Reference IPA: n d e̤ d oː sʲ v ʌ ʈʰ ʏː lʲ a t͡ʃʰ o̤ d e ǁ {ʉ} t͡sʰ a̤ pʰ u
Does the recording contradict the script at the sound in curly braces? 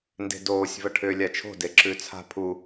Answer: no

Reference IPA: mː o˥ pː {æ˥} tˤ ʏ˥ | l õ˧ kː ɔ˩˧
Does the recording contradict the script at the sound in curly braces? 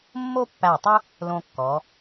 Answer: yes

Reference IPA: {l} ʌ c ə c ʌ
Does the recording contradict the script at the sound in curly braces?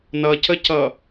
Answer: yes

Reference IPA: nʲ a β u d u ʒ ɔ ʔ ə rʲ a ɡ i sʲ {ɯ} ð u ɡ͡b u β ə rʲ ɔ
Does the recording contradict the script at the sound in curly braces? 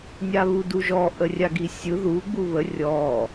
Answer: no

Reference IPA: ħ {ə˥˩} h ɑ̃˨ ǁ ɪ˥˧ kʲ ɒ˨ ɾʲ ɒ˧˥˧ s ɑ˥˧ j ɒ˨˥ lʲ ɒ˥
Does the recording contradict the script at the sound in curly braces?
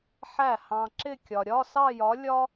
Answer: yes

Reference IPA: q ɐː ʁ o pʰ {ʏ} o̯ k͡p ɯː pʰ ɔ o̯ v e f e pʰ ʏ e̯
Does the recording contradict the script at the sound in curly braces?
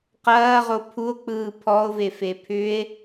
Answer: yes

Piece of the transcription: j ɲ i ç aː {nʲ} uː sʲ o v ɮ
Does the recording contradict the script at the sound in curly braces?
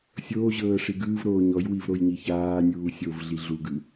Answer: no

